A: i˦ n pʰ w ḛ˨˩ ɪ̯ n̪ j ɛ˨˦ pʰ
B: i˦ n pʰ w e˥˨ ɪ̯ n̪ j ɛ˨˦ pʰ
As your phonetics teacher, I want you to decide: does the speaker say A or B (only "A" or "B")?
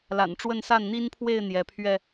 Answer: B